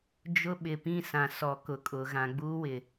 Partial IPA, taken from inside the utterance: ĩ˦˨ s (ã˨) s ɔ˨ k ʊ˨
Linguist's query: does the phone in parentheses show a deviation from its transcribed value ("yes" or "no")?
no